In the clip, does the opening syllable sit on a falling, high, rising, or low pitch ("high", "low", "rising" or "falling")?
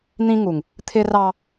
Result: high